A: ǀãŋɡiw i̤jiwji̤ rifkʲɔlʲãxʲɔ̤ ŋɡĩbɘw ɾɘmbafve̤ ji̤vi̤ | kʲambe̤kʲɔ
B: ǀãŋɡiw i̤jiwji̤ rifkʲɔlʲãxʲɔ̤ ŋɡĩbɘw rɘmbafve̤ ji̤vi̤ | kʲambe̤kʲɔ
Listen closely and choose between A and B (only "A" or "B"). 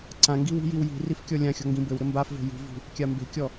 A